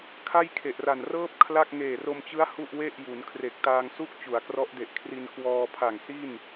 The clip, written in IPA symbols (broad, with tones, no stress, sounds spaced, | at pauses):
kʰ a˥˩ j kʰ e˨˩ ʔ r a˨˩ n r ɤː˥˩ p̚ kʰ l a˥˩ k̚ ŋ eː˨˩ r o˧ m t͡ɕ ɯ˦˥ a̯ h u˥˩ ʔ w e˥˩ ʔ j u˩˦ n kʰ r e˨˩ k̚ t aː˧ ŋ s u˥˩ k̚ t͡ɕ u˩˦ a̯ k r ɔ˦˥ ʔ d e˨˩ ʔ kʰ r i˧ n k w ɔː˧ pʰ a˨˩ ŋ s i˥˩ n